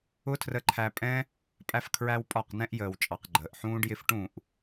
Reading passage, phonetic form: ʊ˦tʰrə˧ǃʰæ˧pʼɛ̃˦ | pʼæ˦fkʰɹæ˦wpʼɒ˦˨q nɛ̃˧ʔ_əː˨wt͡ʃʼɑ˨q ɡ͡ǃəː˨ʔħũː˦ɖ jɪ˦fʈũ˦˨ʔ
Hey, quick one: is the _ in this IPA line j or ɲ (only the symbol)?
j